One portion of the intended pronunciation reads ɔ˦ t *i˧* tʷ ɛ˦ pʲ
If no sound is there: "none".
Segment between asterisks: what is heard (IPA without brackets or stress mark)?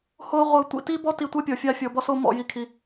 i˧